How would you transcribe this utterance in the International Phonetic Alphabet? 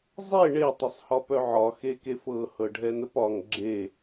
zˤe ɳe tˤəsˤhɒpœʕɒ xekefɤ hɤɖʱɛnəpɒŋ ɡ͡ǁe

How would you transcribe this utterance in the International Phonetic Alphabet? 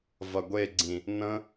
vɐɡʷeɡ͡ǀĩ | nə̃

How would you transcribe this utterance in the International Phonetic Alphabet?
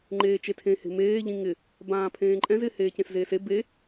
ŋ͡ǃeːt͡ʃetʰẽ he̤meː ʎĩŋɪ | bãːpʰẽːǃʼɛ̃z ɪ heːcẽszeːse be

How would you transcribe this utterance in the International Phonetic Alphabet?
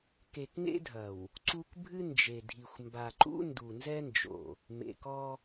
ke˨kŋḛ˦dʱɐ˨w | ǀu˦k bʱɨ˦nd͡ʒe˨dʱi˨xʷ mba˨ǃṵ˦ ndu˨nzɛ˦nd͡ʒo̰˨ | mḛ˨kɔ˦

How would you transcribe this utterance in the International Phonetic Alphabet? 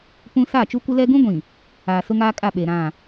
pũ˦ saː˦˨t͡ʃu˦kʷɪ˦lɛ˦ ɡũ˦ɡʷĩ˨ | aː˨ sʊ˦ŋaː˦ kʼa˦˨ɓe˨ɾã˦˨

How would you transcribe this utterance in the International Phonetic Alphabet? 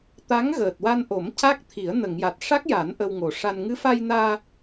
t̪a˧˥ŋɣəː˨˩t̚wa˧nʔo˨˩˦m ca˦˥k̚ t̪ʰi˨˩˦ə̯nə˨˩˨ŋja˨˩t̚ ʂa˦˥k̚ja˨˩˦n ʔə˧wŋo˨˩ʂa˧n ŋɨ˧˥fa˧jnaː˧

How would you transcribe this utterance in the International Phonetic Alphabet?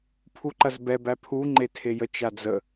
pʰuǃɐzbɛbæ pʰuŋ͡ǃe tʰejət͡ʃa d͡zə

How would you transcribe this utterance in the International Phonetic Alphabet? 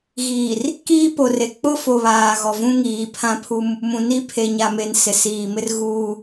ɣiː˨r | kiː˦po˨re˨ k͡pʊ˦fo˨ βaː˨ɣɔ˨vũ˦ ŋiː˨pʰã˦pʰu˦m | mũ˨ni˦ pʰe˨ɲa˨me˨n sɪ˨siː˨mɪ˦r ɣuː˦

